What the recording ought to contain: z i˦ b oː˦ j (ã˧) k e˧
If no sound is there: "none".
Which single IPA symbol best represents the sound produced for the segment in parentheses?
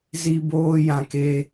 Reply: ã˧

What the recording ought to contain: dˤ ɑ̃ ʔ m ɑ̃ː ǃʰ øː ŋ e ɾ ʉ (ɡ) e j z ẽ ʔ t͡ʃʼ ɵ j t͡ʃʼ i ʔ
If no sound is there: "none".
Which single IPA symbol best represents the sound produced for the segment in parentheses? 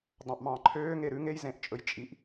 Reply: ŋ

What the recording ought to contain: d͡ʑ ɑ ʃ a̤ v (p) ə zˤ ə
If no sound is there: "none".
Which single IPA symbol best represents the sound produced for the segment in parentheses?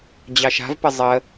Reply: p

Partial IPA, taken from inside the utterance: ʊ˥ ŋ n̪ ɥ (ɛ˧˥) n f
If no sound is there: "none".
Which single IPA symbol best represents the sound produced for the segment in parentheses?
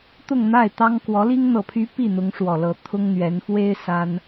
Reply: ɛ˧˥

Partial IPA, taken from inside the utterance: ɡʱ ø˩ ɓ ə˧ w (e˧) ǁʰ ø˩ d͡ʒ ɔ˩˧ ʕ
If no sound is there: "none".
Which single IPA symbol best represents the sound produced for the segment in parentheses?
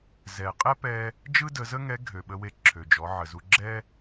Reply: e˧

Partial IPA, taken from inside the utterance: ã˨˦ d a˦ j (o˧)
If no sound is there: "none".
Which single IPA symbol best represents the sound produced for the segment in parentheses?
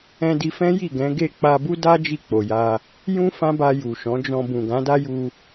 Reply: u˧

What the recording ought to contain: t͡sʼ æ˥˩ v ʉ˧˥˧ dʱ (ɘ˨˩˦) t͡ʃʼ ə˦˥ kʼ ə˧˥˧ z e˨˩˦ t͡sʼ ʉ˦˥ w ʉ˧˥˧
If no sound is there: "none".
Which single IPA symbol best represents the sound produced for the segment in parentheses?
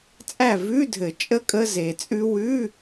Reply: ɘ˨˩˦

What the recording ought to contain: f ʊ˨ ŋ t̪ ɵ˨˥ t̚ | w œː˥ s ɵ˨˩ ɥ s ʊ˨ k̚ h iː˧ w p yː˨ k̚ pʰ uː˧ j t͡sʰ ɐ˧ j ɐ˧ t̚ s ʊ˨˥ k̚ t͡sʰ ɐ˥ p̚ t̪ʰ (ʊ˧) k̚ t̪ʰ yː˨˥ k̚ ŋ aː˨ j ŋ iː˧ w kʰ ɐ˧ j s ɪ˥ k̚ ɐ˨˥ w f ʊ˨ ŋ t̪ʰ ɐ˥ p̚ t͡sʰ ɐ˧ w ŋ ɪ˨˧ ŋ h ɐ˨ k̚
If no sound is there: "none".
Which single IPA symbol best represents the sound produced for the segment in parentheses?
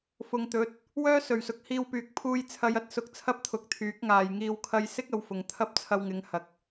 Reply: ʊ˨˥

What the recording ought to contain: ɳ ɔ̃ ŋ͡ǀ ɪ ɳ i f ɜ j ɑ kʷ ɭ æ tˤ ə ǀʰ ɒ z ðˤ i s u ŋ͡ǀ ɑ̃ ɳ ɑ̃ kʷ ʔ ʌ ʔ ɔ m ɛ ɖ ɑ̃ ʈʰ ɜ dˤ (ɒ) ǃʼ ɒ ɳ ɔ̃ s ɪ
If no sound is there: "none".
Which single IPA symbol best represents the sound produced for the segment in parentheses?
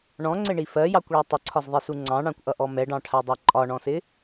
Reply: ɑ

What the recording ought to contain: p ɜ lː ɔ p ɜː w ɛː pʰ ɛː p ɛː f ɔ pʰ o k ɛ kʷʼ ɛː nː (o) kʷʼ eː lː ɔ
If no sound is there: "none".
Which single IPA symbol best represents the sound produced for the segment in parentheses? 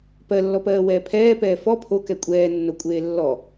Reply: o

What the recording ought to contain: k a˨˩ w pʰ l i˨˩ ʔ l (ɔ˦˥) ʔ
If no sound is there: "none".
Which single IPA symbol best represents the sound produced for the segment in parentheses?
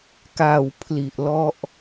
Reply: ɔ˦˥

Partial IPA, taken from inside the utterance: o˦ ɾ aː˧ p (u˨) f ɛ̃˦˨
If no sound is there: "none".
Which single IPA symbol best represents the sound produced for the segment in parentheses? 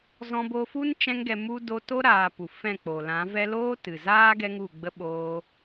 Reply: u˨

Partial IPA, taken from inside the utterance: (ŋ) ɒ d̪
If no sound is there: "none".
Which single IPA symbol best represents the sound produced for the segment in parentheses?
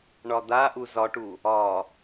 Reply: ɳ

